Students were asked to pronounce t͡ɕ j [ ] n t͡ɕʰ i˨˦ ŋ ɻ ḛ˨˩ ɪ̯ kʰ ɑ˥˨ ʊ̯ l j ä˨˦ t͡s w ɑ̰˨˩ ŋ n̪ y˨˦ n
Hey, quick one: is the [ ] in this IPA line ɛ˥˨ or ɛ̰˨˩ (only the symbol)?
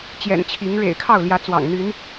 ɛ̰˨˩